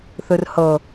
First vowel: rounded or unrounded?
unrounded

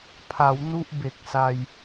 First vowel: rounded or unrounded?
unrounded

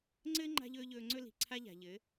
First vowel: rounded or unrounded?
unrounded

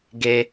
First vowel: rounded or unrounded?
unrounded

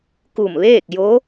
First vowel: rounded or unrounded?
rounded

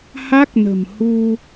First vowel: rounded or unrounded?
unrounded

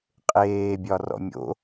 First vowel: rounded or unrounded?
unrounded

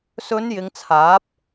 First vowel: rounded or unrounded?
rounded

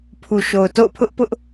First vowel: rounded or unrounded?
rounded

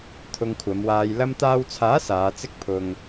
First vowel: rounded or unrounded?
rounded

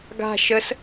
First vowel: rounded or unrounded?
unrounded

